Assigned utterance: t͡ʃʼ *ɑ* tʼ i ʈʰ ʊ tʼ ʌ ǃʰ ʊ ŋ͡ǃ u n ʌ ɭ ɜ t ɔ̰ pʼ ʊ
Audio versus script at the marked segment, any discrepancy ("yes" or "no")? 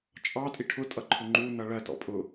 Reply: no